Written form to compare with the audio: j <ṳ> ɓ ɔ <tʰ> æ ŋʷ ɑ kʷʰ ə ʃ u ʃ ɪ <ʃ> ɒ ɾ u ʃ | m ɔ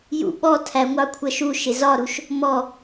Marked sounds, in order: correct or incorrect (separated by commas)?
incorrect, correct, incorrect